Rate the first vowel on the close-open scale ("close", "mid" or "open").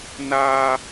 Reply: open